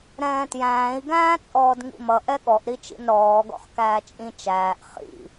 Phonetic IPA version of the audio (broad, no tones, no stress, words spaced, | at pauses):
ɾɛ̃ːtjæ̃ːi̯ ɡæ̃ːt͡sʼɔːdŋḭmʌ ʔɛɠɔʔ ɾit͡ʃḭnɾɔː ɡɔ̰χkæːt͡ʃʼĩ t͡ʃæːʔ χḭ